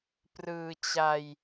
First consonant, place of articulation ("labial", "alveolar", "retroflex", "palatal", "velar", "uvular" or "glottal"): labial